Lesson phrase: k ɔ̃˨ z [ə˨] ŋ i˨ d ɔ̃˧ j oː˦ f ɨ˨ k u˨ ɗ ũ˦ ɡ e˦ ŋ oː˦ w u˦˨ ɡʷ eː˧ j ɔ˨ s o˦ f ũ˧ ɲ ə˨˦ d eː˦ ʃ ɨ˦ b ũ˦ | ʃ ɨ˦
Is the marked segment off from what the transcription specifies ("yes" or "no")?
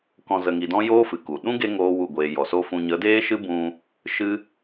no